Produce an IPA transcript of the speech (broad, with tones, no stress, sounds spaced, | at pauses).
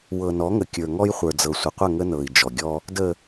w ɤ˨ n ɔ˨˦ ŋ ə˨ kʲ ə˞˨ ŋ ɔ˦ j χʷ ə˞˨ d͡z ɤ˨ sʷ ə˨ qʷ ə˦˨ ŋ ə˦ n ɤ˨ i̯ d͡ʒ ɔ˨ ɡʲ ɔ˦ | d ə˨